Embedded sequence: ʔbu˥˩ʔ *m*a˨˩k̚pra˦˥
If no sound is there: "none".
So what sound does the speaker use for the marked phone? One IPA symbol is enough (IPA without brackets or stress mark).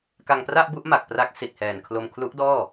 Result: m